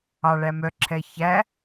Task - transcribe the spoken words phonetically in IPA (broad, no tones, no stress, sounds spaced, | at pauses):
ɑ ɭ æ m œ ǁʰ ɛ ç æ